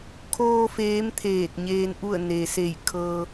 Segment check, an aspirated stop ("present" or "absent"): present